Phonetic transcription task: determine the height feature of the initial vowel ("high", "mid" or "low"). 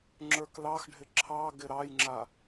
mid